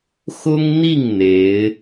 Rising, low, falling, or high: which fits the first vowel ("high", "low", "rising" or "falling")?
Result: high